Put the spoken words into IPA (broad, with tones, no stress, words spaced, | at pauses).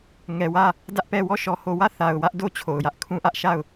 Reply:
ŋɛ˨wä˦˨ | dä˦ʔpɛ˦˨ wɔ˦˨ʃɔ˨ho˨wä˦˨ θa˨ʊ̯ wä˦ʔdo˦t͡ɕʰo˨ʊ̯jä˦ʔ kʰũ˦ʔä˦ʔ ʃa˦˨ʊ̯